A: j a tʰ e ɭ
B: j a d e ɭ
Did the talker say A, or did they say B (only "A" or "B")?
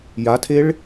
A